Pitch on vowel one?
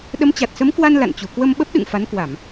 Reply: rising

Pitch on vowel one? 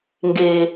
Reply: low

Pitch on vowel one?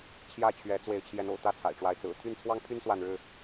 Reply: falling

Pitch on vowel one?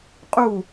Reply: falling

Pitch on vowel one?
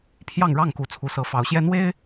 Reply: falling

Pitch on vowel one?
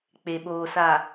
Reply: low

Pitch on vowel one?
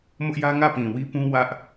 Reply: high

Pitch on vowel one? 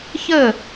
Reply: falling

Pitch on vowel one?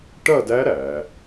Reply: falling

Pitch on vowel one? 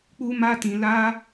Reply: high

